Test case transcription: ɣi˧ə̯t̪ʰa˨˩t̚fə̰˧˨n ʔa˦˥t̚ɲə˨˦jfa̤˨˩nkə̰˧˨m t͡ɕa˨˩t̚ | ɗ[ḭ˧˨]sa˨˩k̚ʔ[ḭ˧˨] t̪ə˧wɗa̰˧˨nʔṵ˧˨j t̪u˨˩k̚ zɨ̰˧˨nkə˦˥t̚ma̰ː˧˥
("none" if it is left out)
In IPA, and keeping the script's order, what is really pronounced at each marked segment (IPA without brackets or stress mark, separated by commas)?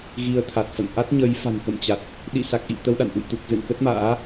ḭ˧˨, ḭ˧˨